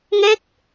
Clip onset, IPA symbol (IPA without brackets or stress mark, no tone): ŋ